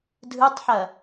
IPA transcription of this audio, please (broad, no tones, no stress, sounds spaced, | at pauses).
dʱ ɯ tˤ ħ ɐ